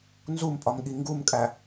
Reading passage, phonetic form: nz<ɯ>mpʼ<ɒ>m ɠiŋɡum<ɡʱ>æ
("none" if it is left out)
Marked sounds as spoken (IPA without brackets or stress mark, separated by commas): u, ɒ, kʼ